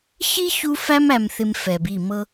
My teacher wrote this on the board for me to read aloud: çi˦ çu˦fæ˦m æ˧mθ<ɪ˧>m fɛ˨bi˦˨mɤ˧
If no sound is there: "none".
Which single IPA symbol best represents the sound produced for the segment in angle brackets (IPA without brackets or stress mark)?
ɪ˧